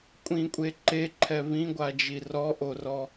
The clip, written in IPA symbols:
kʷʼ ĩ kʷʼ e ǃ e ǃʰ ɛ β ĩ ɡʷ a d͡ʒ i r ɔ ʔ o r ɔ

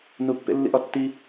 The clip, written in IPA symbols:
n u pː ḛ lː ḭ ʔ ɒ tː i

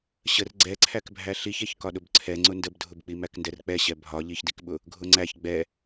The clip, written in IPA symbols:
ɕ ə r ɡ͡ǀ ɛ ǀʰ æ k bʱ æ ɬ i ç ɛ ç k ɒ ɗ ʊ b ǀʰ ɛ ŋ͡ǀ ʊ n d ə b dʱ ʊ b k͡p i m æ k n d ɛ r k͡p ɛ ɕ ɛ bʱ ɒ ʎ i ç d i k ɓ ʊ | ɡʱ ʊ ŋ͡ǀ æ ç ɡ͡b ɛ

